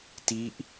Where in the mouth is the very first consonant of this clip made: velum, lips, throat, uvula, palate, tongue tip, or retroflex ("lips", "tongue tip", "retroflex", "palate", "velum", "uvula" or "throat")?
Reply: tongue tip